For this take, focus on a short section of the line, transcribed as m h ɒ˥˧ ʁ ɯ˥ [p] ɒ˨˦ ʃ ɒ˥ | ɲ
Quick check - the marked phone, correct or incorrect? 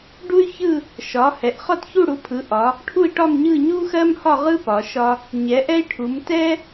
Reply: correct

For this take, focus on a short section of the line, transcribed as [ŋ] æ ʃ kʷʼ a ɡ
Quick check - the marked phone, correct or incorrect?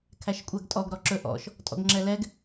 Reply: incorrect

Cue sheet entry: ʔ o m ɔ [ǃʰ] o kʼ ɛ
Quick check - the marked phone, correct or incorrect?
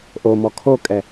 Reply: incorrect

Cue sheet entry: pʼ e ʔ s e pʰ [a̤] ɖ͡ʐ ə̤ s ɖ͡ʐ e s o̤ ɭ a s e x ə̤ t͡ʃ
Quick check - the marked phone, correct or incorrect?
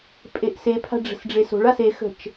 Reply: correct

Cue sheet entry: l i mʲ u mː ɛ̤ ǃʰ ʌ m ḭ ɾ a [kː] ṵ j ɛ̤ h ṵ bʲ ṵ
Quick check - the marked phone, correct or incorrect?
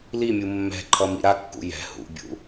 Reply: correct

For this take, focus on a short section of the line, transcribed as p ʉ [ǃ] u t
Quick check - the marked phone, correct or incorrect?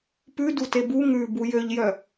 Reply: incorrect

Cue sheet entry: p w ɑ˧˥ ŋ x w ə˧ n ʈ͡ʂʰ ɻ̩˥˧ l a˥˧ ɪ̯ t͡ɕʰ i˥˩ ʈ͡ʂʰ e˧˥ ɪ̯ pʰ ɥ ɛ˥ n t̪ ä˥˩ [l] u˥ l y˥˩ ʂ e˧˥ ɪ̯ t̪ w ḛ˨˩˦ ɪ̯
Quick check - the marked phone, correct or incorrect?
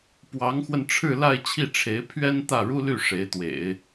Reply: incorrect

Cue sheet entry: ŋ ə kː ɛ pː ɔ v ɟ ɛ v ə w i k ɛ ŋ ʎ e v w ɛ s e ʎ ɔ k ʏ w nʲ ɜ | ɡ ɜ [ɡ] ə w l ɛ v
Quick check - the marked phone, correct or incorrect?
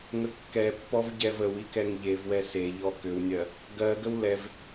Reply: correct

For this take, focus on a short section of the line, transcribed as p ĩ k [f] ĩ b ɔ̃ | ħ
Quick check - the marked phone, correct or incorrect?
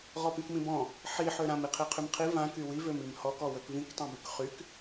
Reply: incorrect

